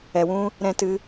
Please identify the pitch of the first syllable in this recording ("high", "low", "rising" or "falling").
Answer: low